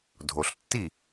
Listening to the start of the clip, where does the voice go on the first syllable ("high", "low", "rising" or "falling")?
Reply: low